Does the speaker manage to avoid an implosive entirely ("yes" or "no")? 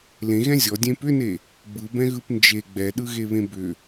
no